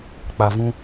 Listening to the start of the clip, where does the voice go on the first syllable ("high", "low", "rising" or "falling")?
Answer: low